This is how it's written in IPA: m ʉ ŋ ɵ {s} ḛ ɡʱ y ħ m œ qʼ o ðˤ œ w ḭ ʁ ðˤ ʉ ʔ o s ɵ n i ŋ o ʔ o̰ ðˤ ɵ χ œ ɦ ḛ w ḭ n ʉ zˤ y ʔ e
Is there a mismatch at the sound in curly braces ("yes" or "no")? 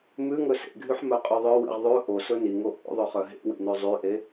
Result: no